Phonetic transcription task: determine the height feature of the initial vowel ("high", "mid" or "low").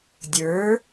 mid